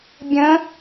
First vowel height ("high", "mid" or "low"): mid